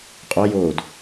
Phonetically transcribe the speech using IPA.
qʼ o j oː d

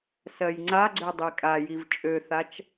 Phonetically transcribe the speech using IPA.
s ɜ j ŋ͡ǀ a ɡ͡ǀ ø dˤ i kʼ a j i v t͡ʃʼ ø θ a t͡ʃ

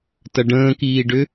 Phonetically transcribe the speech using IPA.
t ɐ ɖ ə̃ː k iː ɖ ʏ

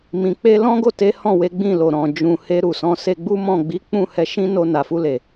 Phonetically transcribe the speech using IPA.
m ĩ˨ k͡p e˧ l ɔ̃˦ ɡ o˦˨ t e˨˦ h ɔ̃˦˨ w e˨˦ ɡ͡b ĩ˦˨ l o˨ ɾ ɔ̃˨ d͡ʒ ũ˨ h e˧ ɾ u˨ s ɔ̃˨˦ s e˧ ɡ͡b u˦ m ɔ̃˦˨ ɡ͡b i˨˦ k͡p ũ˦˨ h ɛ˨˦ ʃ ĩ˦ n o˧ n a˨ f u˧ l e˨

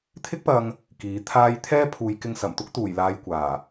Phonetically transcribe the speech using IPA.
t̪ʰ ɪ˥ k̚ p ɐ˧ ŋ | k iː˨˥ t̪ʰ aː˥ j t̪ʰ ɛː˥ pʰ uː˨˧ j k ɪ˧ ŋ s ɐ˨˩ m t̪ ʊ˥ k̚ t̪ uː˨˩ j l aː˨ j kʷ aː˨˩

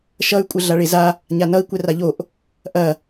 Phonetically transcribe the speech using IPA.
ʃ ʌ y̯ kʷʼ ɘ ɮ a ɭ e z a | ɲ a n ʌ i̯ kʷ ɛ r a ʎ o ʔ | ʔ ɐ

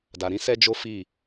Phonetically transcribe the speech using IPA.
d a˨ ɾ ĩ˨˦ s ɛ˦ d͡ʒ o˦ f i˦˨

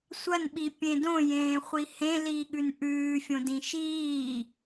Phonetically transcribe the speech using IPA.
sʷ ɐ n ɓ i pʲ ẽ d õ j ẽː χʷ i h ẽ l iː ɠ ʉ n ʔ ʉː fʲ õ d ĩ ʃ iː

